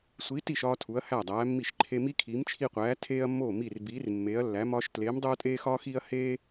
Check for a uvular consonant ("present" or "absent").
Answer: present